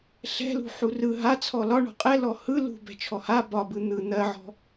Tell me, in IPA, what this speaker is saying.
ɬɛ̤lṳ ħurɯ ɦa t͡sʰɔlɒɳɔ̤ qʼɛlɔ hɯ lṳ bɛ̤t͡ʃʰɔha bɒbɯ n̪ɯ n̪ɜʕɔ̤

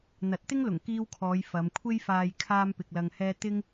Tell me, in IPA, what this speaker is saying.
n̪ɐ˨˥t̚t̪ɪ˥ŋlʊ˨˩ŋ kiː˧wkʰɔː˨˧j fɐ˨˧mkʷʰe˥jfaː˧j kʰaː˥mpɪ˧k̚lɐ˧ŋhɛː˥ t̪ɪ˥ŋ

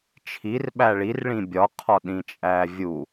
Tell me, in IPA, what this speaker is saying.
t͡ʃʰir ɓæɭirɭĩ bʲɒqʰɒ ɗĩt͡ʃʼævʲu

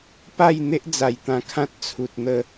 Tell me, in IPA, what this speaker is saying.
pa˥˧jn̪e˦ʔ d͡za˨˩jt̪ã˧kʰã˦t̚ t͡sʰu˨t̚n̪ə˥˧

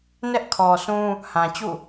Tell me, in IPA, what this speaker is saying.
nɛ˦ʔkʰɔ˨sũ˦ | hã˨t͡ɕṵ˦˨

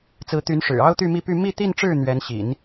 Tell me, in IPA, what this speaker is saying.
t͡sɹ̩˧˥t̪y˧˥nʂɻ̩˨˩ ɑ˥ʊ̯t̪y˥˧mi˥˧py˥˧ mi˥˧t̪i˥˧nʈ͡ʂɻ̩˥˩ n̪ɥɛ˧˥nɕḭ˨˩˦n

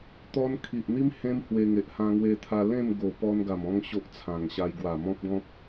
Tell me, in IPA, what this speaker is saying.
t̪ɔ˦n kʰi˨ʔn̪i˦m hẽ˦mhwe˧ŋe˨ʔ hã˧ŋwe˧t̪ʰa˧ lẽ˥˧mɡo˨˩ pɔ˧nɡa˨˩mɔ̃˧ŋ ɕo˦ʔt͡sʰã˨˩ŋɕa˧j ɡwa˨˩mɔ̃˦p̚ɡɔ̃˦p̚

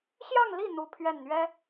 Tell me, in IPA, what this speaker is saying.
ɕjɑ˥˧ŋli˥˩ n̪u˥pʰɥɛ˥˩nn̪ɥɛ˥

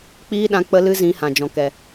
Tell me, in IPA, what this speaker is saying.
k͡piː˦ɗã˧ k͡pə˦lɨ˦zĩ˨˦ hã˨d͡ʒɔ̃˨ kɛ˨

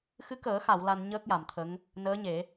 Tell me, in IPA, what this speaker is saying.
xɨ˧˥kəː˨˩˦xa˨˩˨w la˧n ɲəː˦˥k̚ja˨˩˨mt̪ʰə˧˥ŋ | nəː˧˥ɲe˨˩˦

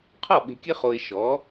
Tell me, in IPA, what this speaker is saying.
qʰɔ˥˩ ɓe̤˧kʲɘ˥χo˧ɪ̯ ʃɔ˩˥

